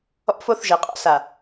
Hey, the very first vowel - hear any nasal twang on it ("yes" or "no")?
no